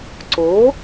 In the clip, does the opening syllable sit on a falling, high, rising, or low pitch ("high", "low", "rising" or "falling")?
rising